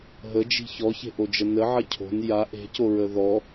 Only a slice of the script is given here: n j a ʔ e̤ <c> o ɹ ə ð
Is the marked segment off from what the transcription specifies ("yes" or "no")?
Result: no